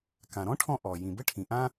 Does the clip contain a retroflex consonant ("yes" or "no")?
yes